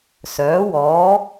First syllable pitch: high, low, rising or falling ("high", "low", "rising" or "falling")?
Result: rising